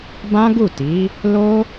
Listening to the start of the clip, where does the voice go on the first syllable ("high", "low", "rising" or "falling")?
high